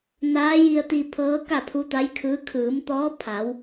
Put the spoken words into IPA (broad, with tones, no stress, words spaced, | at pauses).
naː˧˥ji˧ə̯t̪i˧ pʰɤː˧˥ ka˥˨pʰu˧˥t̪a˧˥jkʰɯː˧˥ kʰɯː˩˧mt̪ɔː˧˥pʰa˩˧w